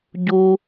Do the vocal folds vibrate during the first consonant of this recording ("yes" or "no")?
yes